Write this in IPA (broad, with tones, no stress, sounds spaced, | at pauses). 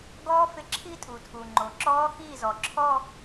ɡ ɔː˦˥ f ɪ˧ ǁʰ i˦˥ tʼ u˩ tʰ u˩ ŋ͡ǃ o˩ ǁ ɔː˦˥ x iː˥˩ z ɔ˩ ǁʰ ɔ˥˧